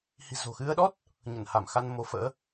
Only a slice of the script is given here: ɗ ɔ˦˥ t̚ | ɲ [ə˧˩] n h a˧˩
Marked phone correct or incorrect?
correct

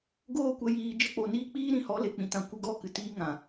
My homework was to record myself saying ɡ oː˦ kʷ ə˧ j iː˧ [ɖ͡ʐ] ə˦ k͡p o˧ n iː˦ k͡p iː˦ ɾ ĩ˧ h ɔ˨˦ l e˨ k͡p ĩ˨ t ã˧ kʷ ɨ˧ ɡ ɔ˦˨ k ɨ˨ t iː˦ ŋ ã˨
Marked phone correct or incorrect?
incorrect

